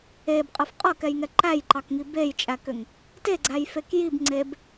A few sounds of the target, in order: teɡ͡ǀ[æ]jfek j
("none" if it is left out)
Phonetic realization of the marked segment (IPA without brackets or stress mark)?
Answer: æ